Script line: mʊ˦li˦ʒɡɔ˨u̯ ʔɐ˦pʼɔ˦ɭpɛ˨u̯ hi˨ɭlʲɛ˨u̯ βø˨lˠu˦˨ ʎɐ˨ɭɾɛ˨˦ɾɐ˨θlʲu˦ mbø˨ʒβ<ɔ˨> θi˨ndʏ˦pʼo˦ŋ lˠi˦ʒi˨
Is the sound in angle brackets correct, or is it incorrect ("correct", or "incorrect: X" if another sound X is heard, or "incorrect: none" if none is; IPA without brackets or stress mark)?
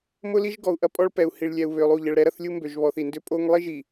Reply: correct